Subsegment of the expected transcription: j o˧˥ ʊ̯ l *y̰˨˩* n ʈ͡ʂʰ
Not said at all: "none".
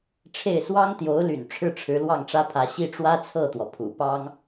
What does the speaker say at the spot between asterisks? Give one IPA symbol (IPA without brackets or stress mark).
y̰˨˩